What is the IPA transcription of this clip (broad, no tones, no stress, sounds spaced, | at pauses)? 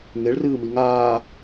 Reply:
ŋ e ɭ r ɨː m i ŋ aː